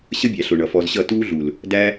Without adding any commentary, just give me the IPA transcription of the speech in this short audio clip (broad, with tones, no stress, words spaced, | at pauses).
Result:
ɕə˦bʲæ˨ɬʊ˨ ɳʌ˨fɔ˧zɕʌ˦˨ tuː˦ɮu˨l | dæ˦